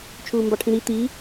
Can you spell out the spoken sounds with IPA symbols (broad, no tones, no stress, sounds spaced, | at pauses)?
t͡ʃʰ uː m b ɑ ʈʰ ĩ ɾ i t̪ i